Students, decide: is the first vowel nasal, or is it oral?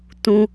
nasal